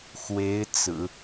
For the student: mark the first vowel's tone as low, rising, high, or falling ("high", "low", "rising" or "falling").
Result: rising